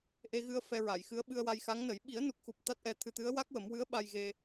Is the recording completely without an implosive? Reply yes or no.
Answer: no